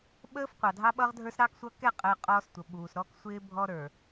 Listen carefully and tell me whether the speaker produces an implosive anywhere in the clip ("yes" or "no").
yes